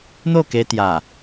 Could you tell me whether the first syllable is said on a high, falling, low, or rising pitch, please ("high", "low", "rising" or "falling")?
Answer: falling